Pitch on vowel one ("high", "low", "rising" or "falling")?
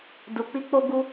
low